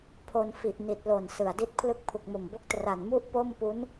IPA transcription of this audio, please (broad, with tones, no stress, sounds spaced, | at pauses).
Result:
pʰ o˧ n f i˨˩ ʔ n i˨˩ t̚ l o˨˩ n s ɯ˨˩ a̯ d i˥˩ t̚ pʰ l ɯ˦˥ k̚ pʰ u˨˩ k̚ m o˨˩ m b o˥˩ k̚ t r a˨˩ n m u˥˩ ʔ p o˥˩ m p u˦˥ n